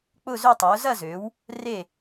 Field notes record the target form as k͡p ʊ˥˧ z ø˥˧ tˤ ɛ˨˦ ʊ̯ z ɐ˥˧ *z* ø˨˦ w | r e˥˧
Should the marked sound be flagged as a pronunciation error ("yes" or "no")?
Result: no